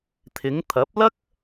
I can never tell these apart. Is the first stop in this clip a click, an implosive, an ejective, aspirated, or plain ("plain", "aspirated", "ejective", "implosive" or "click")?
aspirated